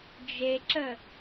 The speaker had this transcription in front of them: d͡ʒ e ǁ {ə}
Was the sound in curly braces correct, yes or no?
yes